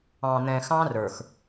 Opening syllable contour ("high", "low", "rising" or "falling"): low